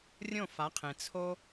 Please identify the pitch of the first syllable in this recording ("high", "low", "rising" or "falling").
falling